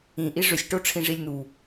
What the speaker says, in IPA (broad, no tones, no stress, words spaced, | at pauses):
ĩ ʔiʐʏsʲ ʈoʈ͡ʂʰĩʐilʲn̪u